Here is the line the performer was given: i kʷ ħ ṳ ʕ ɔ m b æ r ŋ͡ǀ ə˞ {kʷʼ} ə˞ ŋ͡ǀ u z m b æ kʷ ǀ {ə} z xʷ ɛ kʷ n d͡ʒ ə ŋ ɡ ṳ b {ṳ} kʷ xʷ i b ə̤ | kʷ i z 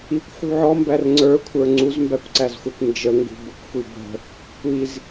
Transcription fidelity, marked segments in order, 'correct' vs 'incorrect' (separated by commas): incorrect, incorrect, incorrect